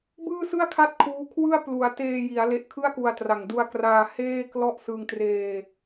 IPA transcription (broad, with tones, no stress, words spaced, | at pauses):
bɯː˥˩sɯ˥˩a̯kʰa˥˩t̚ kʰuː˦˥kʰwɯ˥˩a̯ plu˩˦a̯ teː˧ji˩˦a̯ le˦˥ʔkʰɯ˥˩a̯ku˧a̯tra˨˩ŋ du˧a̯kraː˧ heː˥˩klɔ˥˩ʔ sɯ˧ŋtreː˧